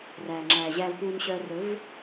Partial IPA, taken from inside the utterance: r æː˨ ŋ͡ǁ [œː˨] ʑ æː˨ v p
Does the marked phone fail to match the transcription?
yes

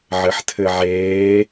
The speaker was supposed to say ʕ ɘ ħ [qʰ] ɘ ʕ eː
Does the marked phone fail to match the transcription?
yes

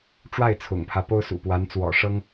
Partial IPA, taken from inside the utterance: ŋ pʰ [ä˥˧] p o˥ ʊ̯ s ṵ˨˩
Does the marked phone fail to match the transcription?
yes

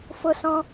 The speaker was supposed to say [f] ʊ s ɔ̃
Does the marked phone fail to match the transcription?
no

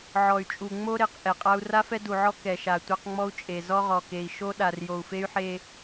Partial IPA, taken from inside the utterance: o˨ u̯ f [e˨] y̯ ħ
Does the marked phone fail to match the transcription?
yes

